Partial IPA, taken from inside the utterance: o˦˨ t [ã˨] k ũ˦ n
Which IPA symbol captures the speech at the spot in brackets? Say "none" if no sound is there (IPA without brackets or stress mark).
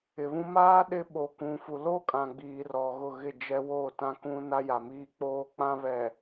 ã˦